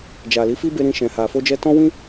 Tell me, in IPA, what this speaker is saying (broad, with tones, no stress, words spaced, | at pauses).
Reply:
d͡ʒa˨li˨˦fi˦be˧ ɾĩ˧ʃɛ̃˨ha˨ fo˧d͡ʒɛ˧ tɔ̃˦wĩ˦